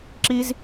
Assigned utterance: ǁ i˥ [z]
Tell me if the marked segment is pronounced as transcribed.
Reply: yes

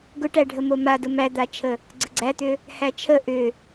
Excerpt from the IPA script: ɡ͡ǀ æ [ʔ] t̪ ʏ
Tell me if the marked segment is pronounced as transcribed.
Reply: no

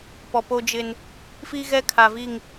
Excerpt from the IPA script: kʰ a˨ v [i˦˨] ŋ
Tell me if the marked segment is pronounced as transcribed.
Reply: yes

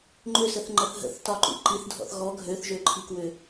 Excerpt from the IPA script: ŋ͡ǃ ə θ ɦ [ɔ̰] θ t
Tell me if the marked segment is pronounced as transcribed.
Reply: no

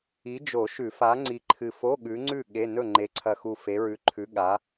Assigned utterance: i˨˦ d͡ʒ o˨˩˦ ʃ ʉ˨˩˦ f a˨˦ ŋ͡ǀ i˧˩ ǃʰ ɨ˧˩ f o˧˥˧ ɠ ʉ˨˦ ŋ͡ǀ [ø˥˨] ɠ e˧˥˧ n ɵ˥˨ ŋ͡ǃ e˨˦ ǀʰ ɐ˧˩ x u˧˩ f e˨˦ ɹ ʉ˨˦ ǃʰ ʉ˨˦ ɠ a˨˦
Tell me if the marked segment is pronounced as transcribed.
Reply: no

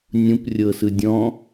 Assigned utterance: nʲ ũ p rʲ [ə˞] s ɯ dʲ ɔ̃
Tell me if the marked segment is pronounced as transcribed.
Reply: no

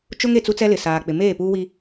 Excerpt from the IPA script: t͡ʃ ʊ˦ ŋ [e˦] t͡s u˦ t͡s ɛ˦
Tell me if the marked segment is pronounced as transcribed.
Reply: no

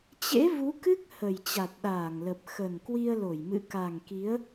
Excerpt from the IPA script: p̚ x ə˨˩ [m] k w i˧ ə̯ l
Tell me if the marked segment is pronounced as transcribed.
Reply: no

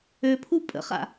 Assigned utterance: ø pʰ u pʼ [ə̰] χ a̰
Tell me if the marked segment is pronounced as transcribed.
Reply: yes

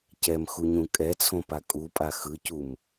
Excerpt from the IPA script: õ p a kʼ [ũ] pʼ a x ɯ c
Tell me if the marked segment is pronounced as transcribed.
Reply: no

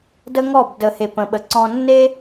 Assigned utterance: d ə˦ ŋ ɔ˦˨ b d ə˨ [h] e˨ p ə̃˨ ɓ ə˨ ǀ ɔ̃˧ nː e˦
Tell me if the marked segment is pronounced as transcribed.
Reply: yes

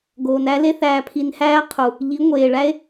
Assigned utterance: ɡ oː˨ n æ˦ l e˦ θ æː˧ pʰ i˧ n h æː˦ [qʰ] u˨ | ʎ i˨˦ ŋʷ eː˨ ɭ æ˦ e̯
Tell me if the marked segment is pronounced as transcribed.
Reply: yes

